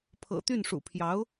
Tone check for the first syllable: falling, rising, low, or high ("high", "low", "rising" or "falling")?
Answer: low